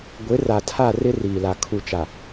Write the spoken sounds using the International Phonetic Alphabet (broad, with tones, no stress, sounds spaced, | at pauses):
ɡʷ ɪ˨˦ r a˨ tʰ a˦˨ r ɪ˦ r iː˨ l a˨ kʰ u˨ t͡ʃ a˨